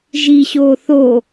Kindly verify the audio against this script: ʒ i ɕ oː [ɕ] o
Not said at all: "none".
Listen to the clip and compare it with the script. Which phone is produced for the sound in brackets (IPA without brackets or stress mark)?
θ